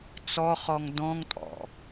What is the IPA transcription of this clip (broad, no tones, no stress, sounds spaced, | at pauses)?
t͡s ɔ χ ɔ ŋ d ɔ̃ ŋ tʼ ɔ̰